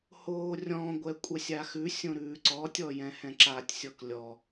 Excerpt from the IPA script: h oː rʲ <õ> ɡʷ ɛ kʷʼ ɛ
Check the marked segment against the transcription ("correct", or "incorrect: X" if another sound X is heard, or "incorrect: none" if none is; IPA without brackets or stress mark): incorrect: ɔ̃